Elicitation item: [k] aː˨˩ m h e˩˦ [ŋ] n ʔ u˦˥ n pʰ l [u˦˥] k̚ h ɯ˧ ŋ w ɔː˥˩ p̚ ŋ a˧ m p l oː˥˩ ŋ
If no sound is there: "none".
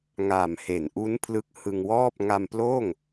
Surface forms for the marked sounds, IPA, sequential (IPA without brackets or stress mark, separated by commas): ŋ, none, ɯ˦˥